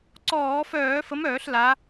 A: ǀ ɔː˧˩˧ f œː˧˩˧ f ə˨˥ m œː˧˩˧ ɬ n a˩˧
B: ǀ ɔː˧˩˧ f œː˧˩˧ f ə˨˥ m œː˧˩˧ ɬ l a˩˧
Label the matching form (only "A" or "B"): B